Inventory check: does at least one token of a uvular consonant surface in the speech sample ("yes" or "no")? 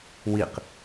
yes